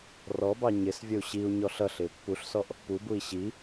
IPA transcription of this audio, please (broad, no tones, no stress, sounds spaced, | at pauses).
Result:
r ɔ b ɑ ɲ ɪ s vʲ ə u̯ ɕ i u̯ ɲ ɔ ɬ ʌ ɬ ɪː pː u ɬ s ɔ ʔ | p u b u i̯ ɕ i